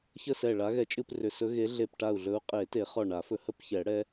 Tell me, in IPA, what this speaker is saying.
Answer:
çə˥˧sɛ˧˩ ɭa˨˦ɣɛ˧˩ t͡ʃʼɨ˥˧prʏ˧˩sɵ˦˥ ɣe˨˦ɮe˧˩pʈa˧˩u̯ɮɵ˨˦u̯ qʼe˨˩˦te˨˩˦ χɔ˧˩ɳa˨˩˦fɵ˨˦ hə˥˧pçɛ˨˩˦ɽɛ˦˥

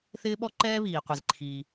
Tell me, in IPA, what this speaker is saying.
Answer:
θɪː˥ ɓɔ˥ǃɛː˥βiː˩qʷi˩z ǃʰi˩

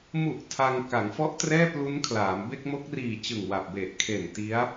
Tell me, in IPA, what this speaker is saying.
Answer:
mu˨˩ʔ tʰa˧ŋ ka˩˦ŋfɔ˦˥ʔ trɛː˥˩plu˦˥nkʰlaː˩˦m be˥˩k̚mo˦˥k̚riː˨˩ t͡ɕɯ˨˩ŋwa˨˩p̚ be˨˩ʔkʰe˨˩n ti˦˥a̯

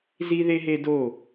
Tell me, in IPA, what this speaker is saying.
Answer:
zi˦ðe˦ɦe˦do˦˨

